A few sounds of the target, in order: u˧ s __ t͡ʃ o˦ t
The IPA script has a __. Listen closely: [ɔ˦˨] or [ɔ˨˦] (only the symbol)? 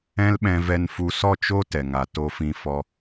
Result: ɔ˦˨